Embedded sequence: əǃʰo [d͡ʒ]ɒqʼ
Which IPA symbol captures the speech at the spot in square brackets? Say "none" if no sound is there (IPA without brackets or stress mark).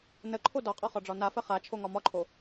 d